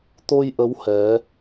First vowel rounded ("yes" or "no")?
yes